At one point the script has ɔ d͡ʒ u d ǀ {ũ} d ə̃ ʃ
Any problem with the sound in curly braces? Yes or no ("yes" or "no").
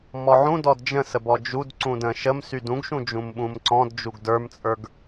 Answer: no